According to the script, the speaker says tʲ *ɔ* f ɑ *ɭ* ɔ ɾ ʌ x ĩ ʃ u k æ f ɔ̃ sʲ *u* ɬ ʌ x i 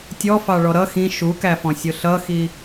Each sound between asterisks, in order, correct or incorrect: correct, correct, incorrect: ʊ

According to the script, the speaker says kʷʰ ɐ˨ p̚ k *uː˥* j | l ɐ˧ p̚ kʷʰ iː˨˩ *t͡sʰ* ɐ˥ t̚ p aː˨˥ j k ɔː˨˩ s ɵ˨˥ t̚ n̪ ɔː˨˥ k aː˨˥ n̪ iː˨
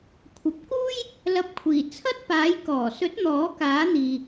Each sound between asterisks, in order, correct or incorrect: correct, correct

